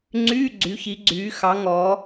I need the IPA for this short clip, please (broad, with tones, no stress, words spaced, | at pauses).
ŋ͡ǀyː˧˥˧ɡ͡ǀy˩˧çi˩˧ ɡ͡ǀyː˩˧ xɑ˩˧ŋɔ˩˧